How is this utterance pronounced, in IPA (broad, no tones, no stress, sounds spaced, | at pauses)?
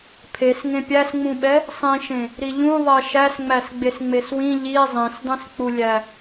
pʰ e s ŋ ẽ pʲ æ s ŋ͡m ũ ɓ ɛ | sˤ ĩ ʃ ẽ | ɾ i ʎ ũ ðˤ ɛ ʃ æ s ŋ͡m æ s ɡ͡b e s ŋ͡m e s w ĩ ʎ i zˤ ẽ s dˤ ĩ s k͡p u lʲ æ